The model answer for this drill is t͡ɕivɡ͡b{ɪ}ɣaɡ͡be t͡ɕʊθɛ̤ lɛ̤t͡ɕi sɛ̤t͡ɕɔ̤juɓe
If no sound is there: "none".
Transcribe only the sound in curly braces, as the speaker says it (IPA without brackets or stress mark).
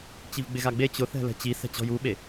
ɪ